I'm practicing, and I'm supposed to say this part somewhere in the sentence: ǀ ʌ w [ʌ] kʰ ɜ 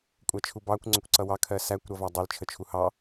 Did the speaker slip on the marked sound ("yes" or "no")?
yes